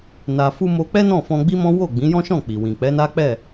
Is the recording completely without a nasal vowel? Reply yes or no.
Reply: no